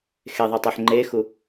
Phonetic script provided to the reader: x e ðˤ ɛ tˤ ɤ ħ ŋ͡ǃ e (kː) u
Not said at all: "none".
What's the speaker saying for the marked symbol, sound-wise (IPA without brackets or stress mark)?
x